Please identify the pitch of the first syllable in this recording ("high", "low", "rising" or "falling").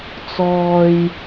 high